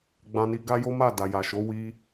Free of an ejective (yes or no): yes